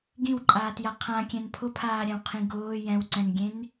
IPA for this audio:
ɡ ĩ w ǃʼ aː t j a qʰ ã kʲ ɛ̃ n pʰ ʊ pʰ aː ɾʲ ã w qʰ ĩ ɡ ʊː j ɛ̃ w ǀ ɛ̃ n ɡʲ ẽ n

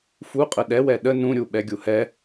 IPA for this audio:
f u qʼ ə ɗ ɛ w ɛ ɗ ə n ũ ɾʲ u ɓ ɛ ɡʲ u h ɛ

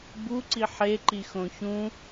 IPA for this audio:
b u ǀ i ħ e ǃ i x õ ç ũ

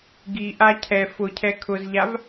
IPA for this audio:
ɡ i ʔ a cʰ ɛ f ʊ cʰ ɛ kʰ ʊ z ʎ a v

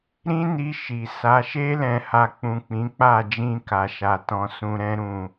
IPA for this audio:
ɾ ĩ˦ n i˧ ʃ i˨ s a˨˦ ʃ e˧ l ɛ̃˨ h a˨ k͡p ũ˨ k͡p ĩ˨˦ k͡p a˦˨ d͡ʒ ĩ˧ k a˨ ʃ a˨ t ɔ̃˨˦ s ũ˧ ɾ ɛ̃˦ ɾ ũ˦˨

